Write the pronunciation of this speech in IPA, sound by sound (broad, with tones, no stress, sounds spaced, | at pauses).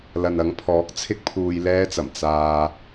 l ɐ˨ n ɐ˨˥ ŋ pʰ ɔː˨˥ k̚ t͡sʰ ɪ˥ k̚ pʰ uː˧ j l ɛː˥ t͡s ɐ˨˩ m t͡s aː˧